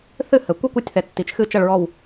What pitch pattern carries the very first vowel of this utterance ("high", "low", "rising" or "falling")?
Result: falling